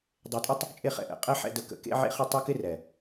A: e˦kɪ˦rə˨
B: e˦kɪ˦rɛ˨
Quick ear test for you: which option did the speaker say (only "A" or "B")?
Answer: B